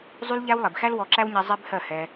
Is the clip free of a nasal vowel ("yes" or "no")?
yes